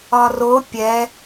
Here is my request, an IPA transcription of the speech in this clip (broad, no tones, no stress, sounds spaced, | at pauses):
ɒ r o pʲ ɛ